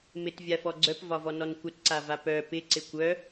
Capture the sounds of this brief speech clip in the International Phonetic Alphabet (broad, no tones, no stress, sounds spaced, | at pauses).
m ɪ t vʲ a f ɔ ɡ͡ǀ œ p v ɒ v ɔ n ɔ n kʷ ə t ǀ a v a p œ p ɪ ǀ ɪ kʷ œ